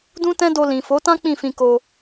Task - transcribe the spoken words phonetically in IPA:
d ũ˦ t ɛ̃˦ d o˧ l ĩ˨ f o˨˦ t ã˦ k͡p ĩ˦˨ f ĩ˧ k o˧

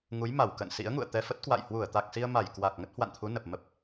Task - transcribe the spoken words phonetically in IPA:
ŋ u˨˦ j m a˧˩ w k ə̰ː˧˨ n s ḭ˧˥ ə̯ ŋ ṵ˧˨ ə̯ t̪ ɛ˧ f ə˦˥ t̚ k w a̰˧˨ j h w u˧˩ ə̯ t̪ a˨˩ k̚ s i˧ ə̯ m a˧˩ j k w a˨˩ k̚ ŋ ə˦˥ t̚ h w a̰˧˨ n t̪ʰ u˨˦ n ə˨˩ p̚ m ə˦˥ p̚

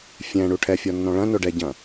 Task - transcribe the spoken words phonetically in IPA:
fʲ ɛ̃ ɳ u ʈʰ ɛ fʲ ɔ nː ɔ̃ ɭ ɐ̃ n o ɖ ɛ ɟ ɐ̃

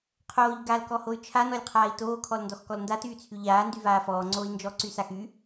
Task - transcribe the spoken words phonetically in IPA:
qʰ oː ʎ ɡ a l k ɔ h o y̯ t͡ʃʰ a n ɔ lʲ qʰ aː i̯ t oː kʰ ɔ l n d ɔ x k ɔ l n d a t yː t͡sʰ y ʎ aː n d y v aː f ɔː ŋ͡ǀ oː i̯ n d͡ʒ ɔ ǀ y s a x y

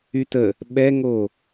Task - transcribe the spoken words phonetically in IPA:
y t ə | ɓ ɛ ŋ o

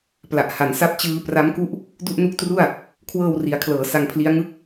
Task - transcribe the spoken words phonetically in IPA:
p l a˨˩ ʔ h a˩˦ n s a˥˩ p̚ t͡ɕ ɯː˦˥ p r a˦˥ m k u˥˩ ʔ | d u˥˩ ʔ n u˦˥ k̚ t r u˥˩ a̯ | kʰ w ɤː˧ w r i˩˦ a̯ kʰ l ɤː˩˦ s a˧ ŋ pʰ l i˦˥ a̯ ŋ ɯ˥˩ k̚

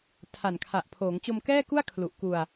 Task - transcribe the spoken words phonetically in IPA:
tʰ a˨˩ n kʰ a˨˩ ʔ pʰ oː˩˦ ŋ t͡ɕ o˧ m k ɛː˥˩ k u˥˩ a̯ kʰ l u˨˩ ʔ k u˧ a̯

